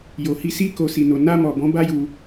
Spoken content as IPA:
jo˨hi˧ si˧ ko˨si˨no˨ na˧mɔ˨bɔ̃˨˦ ba˦ju˧

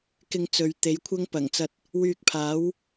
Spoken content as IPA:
kɪ˧ŋt͡sɵ˨˧ɥ t̪e˨˥jkʷʰɐ˥ŋpɐ˨˩ŋt͡sɐ˧t̚ | wyː˧k̚pʰaː˨˥w

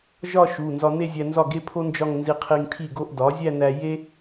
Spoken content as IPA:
ʒɒ˥˧ ʃu˩˧˩ nzɒ˧ne˥˧zʲæ˧nzɒ˥˩ ɡe˥pʰo˥nd͡ʒɒ˥˧ŋ nzi˧qʰi˧ŋtʰi˥˩ɡo˥˧ʔ dɒ˩˥zʲæ˥˧næ˧ je˥

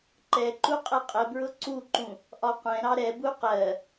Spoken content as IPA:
ǃɛǃu qʼɛqʼəbɹʊ ǀuǃũ | ʔɒqʷɛ̃ɾɑ ɾɛbu qɜ

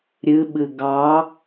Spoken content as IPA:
ɾʲɨɓɨ ɡɑ

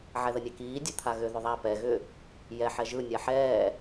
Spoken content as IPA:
ʕɛðənʲɛkiː dʲət̪ʰaɣʏ ðʏðˤa pɛ ɣʏ | jɛ ħɛʒɯ nʲaħɛː

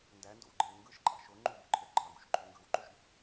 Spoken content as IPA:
ndændo̰wɡ͡ǃew ŋɡɯʃǃʼɑ̰ ʃo ŋ͡ǃubḛǃʰø ɡ͡ǃɑɡṵʃǃʰy ŋɡɯwǃuʃɗṵ

